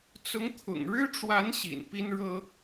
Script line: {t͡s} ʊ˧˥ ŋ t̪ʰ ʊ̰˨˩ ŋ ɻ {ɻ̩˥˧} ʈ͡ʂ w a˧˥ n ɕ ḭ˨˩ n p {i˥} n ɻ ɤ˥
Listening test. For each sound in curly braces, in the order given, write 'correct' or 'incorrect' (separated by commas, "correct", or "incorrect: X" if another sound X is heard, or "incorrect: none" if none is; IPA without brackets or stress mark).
correct, incorrect: ɻ̩˥, correct